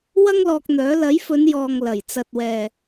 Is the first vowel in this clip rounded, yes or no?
no